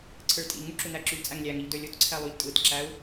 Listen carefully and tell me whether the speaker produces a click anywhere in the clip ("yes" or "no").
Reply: yes